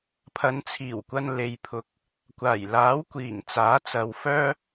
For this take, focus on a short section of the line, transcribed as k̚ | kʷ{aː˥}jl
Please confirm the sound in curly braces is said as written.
no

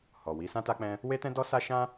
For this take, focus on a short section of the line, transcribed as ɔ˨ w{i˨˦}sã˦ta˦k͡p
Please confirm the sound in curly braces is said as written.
yes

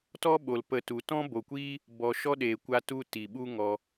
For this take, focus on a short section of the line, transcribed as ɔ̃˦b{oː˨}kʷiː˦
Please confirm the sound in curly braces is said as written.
no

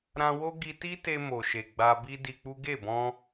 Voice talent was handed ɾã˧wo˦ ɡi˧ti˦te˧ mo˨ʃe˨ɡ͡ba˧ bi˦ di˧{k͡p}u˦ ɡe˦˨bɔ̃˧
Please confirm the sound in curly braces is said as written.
yes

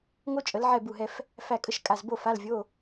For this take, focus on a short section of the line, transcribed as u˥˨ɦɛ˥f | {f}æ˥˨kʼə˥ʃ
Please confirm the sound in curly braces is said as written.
yes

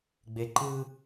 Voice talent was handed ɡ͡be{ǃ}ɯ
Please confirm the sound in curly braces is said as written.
yes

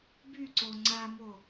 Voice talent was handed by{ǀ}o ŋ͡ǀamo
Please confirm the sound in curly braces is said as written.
yes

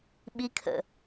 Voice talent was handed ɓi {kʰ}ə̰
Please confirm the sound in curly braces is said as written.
yes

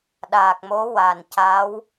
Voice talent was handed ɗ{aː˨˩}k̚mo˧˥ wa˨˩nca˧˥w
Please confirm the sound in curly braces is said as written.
yes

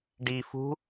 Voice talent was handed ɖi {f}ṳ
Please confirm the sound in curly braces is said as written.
yes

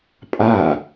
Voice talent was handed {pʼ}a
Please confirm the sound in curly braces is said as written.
yes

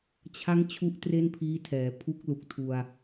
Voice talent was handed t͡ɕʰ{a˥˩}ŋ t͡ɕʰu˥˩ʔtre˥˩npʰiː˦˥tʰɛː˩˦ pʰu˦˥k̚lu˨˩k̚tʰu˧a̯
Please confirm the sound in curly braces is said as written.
no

